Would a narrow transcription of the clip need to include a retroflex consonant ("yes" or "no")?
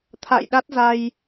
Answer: no